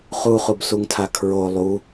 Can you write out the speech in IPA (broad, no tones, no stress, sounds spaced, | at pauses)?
χ u χ u b s u ŋ tʰ a kʰ ɹ o lˠ u